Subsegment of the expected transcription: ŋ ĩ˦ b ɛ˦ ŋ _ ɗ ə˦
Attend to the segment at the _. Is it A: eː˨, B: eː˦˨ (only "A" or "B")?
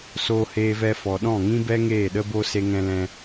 B